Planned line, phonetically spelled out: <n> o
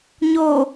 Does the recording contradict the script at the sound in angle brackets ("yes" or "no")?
yes